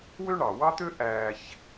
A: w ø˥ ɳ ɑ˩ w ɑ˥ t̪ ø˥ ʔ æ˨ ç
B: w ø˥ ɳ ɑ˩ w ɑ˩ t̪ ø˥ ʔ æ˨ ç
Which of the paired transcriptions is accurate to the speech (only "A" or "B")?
A